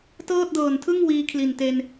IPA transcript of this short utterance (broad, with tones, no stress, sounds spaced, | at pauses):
t ɤː˥˩ t̚ d ɤː˨˩ n tʰ ɯ˥˩ ŋ w iː˦˥ kʰ l i˨˩ n t e˧ n